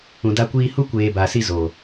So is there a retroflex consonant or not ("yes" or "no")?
no